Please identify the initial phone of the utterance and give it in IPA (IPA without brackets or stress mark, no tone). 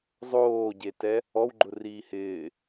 zˤ